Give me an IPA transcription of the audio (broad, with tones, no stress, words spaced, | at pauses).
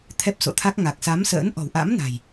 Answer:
t̪ʰɛ˦˥p̚so̰˧˨t̪ʰa˦˥k̚ ŋa˨˩k̚sa˨˦msə̰ː˧˥n ʔɔ̤˨˩wʔa̰˧˥m na̤˨˩j